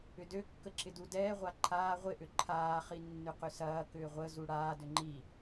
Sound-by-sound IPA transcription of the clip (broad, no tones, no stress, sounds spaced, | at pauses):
ʏ d ø kː ə ǁ ɪ d u d ɛː ʁʷ a ǃʰ aː ʁʷ ɪ ʔ ʏ ǃʰ aː χ i nː ʏ q ʏ s ɐː k ʏː ʁʷ ə z u ɽ aː d ʏ ŋ͡ǃ i